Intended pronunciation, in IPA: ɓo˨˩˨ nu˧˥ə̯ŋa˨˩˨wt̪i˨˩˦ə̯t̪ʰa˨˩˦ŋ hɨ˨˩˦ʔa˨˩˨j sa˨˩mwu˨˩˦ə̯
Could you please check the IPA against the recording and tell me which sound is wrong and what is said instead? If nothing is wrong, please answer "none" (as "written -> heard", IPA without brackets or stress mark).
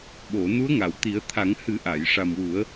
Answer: s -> ʂ